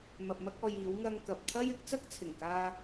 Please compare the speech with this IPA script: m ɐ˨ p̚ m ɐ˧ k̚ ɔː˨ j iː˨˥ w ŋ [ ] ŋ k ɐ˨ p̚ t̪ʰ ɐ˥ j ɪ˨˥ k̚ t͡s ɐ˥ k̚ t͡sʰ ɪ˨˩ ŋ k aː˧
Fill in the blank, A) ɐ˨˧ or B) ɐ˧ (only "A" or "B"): B